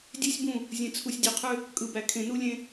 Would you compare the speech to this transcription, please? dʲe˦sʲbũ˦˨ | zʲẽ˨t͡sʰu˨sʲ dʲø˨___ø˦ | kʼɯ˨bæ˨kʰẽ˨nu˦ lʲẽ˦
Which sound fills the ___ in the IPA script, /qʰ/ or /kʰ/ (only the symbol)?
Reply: qʰ